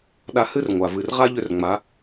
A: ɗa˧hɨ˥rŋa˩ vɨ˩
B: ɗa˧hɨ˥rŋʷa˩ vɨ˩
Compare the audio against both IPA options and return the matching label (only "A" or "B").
B